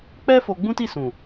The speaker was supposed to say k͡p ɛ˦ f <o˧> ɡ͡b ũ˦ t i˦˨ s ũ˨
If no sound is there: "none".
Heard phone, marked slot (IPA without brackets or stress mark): o˧